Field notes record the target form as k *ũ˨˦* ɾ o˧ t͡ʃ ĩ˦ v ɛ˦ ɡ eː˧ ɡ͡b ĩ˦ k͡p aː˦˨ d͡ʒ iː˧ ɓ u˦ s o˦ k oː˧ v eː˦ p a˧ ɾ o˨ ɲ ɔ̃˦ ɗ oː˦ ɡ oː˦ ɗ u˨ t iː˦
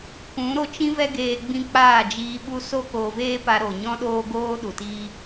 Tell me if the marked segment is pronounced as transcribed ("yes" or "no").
yes